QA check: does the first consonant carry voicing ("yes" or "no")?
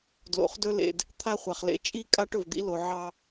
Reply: yes